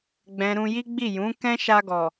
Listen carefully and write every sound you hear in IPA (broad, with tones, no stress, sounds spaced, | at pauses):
ɡ͡b ɛ̃˨ ɾ ũ˧ j i˦ ɡ͡b i˦˨ j ũ˨˦ k ɛ̃˦ ʃ a˧ ɡ ɔ˨